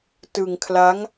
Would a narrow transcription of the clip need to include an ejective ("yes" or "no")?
no